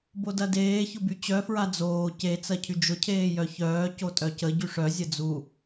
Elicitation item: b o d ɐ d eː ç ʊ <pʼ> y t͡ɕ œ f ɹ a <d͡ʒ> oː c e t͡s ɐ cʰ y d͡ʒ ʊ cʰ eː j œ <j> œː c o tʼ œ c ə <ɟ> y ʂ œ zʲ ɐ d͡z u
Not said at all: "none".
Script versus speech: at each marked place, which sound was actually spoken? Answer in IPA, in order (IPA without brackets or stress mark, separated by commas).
b, d͡z, ç, ɟ